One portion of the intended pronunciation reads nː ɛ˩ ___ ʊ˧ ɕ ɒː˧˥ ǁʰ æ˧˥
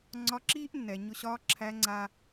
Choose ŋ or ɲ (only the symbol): ɲ